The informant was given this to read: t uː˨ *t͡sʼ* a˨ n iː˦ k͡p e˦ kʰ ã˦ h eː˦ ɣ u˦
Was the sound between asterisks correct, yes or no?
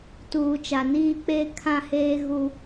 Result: no